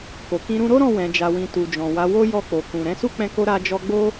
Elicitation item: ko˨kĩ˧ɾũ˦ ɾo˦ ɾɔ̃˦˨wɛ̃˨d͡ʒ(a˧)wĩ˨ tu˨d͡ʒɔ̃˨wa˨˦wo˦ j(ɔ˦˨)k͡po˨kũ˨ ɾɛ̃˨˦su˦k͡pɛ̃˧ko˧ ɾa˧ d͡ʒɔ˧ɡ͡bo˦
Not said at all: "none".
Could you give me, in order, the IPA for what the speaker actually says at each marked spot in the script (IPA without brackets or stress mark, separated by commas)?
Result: a˨, ɔ˦˨